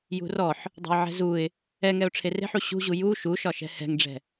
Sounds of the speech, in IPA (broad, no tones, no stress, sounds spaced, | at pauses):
j ṳ r ɔ ħ | dˤ ɛ̤ ɪ̯ ʕ ɛ̤ z u ɪ̯ | ɛ ŋ ɛ ʊ̯ ʈ͡ʂʰ e r e̤ ħ u ɕ ṳ ʑ u j u ʃ u ʃ ɒ ʃ ɛ̤ h ɛ̤ ŋ ɖ͡ʐ ɛ̤